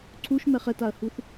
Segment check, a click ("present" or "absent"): present